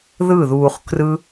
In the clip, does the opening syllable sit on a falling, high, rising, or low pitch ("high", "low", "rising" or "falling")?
falling